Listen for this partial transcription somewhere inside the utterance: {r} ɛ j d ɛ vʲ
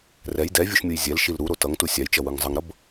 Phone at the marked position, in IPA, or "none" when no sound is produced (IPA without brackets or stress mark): r